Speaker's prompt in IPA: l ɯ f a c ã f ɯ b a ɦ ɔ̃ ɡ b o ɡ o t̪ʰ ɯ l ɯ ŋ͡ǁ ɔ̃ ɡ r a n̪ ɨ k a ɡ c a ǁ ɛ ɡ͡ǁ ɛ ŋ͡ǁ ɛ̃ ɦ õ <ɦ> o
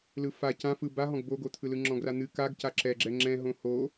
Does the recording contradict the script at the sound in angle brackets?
yes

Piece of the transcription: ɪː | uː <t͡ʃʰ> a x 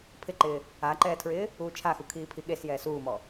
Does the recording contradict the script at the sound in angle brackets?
no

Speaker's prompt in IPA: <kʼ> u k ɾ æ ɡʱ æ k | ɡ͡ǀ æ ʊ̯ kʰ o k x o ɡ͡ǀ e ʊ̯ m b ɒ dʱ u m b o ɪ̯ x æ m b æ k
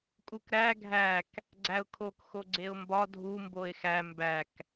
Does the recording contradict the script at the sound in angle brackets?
no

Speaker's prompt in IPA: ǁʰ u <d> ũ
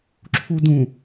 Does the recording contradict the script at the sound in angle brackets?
no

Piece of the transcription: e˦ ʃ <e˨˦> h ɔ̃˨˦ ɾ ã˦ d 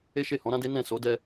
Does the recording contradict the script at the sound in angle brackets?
yes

